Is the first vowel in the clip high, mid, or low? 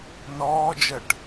mid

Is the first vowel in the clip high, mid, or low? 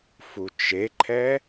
high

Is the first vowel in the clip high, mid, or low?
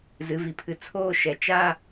high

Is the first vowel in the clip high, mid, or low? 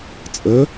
mid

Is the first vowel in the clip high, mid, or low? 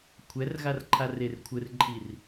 mid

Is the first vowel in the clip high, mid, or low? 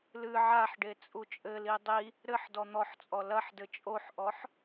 high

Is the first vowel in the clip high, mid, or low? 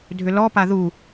high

